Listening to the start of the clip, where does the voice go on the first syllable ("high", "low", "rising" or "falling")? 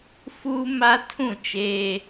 high